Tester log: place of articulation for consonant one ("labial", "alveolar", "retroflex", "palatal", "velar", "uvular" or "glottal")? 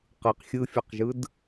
uvular